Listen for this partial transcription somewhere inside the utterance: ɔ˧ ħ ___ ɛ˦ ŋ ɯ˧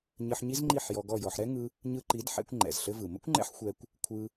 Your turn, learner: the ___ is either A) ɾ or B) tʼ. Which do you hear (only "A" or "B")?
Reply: A